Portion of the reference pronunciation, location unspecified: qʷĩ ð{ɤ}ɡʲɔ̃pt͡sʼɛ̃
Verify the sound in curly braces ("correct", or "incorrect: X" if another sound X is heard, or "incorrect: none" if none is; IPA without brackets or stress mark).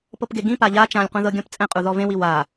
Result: correct